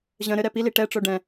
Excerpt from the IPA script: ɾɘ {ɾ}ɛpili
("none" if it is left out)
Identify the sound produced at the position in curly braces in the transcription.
ɾ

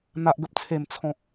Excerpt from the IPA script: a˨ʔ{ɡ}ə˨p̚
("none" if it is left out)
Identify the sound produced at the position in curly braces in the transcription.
ɡ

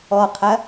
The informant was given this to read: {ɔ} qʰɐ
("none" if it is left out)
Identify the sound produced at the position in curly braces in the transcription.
ɔ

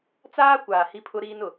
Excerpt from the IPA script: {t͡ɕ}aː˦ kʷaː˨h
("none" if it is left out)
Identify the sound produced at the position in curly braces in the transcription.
t͡s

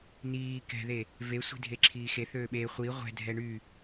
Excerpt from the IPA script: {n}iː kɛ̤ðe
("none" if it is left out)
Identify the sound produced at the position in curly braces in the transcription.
n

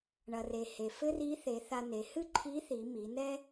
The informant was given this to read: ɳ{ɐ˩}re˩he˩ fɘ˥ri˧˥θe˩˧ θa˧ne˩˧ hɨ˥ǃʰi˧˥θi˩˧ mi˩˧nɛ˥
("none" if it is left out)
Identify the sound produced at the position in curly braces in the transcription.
ɐ˩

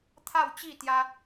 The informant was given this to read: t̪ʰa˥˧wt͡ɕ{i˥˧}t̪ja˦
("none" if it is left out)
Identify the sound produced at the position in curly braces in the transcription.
i˥˧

